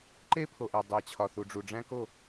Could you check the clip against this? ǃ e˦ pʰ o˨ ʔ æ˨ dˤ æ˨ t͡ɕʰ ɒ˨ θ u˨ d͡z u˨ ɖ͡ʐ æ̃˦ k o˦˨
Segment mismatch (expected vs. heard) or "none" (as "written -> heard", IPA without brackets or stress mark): d͡z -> ɖ͡ʐ